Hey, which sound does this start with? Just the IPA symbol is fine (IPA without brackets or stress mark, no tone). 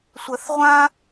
sʷ